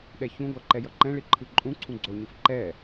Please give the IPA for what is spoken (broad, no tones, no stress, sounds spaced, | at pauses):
ɗ ɛ ç ũ ɡʷ a ǃ ɛ j ʌ ǃ ɛ̃ ɭ i ǃʰ ɯ ǃʼ ũ ǀʰ ũ ɡ͡ǀ o ɲ ɯ f ǃ ɛ